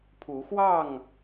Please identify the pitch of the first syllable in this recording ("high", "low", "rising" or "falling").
rising